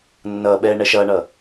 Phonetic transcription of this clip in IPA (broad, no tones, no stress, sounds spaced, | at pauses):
nː ʌː ɓ ɛː ɳ ɛ ʃ ʌː ɳ ʌ